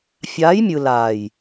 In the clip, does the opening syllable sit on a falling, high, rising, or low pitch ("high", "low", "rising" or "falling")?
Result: rising